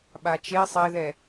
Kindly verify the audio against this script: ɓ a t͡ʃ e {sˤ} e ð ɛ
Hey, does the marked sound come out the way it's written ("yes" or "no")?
yes